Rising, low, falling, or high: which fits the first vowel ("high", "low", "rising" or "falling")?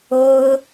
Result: high